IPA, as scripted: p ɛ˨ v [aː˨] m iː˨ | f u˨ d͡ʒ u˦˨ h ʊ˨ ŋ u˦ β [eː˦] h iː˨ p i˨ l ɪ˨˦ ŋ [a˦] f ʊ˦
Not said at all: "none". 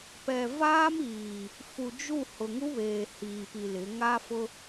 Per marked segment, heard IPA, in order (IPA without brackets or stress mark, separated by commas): aː˦, eː˨, a˦